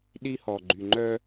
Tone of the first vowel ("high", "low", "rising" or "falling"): high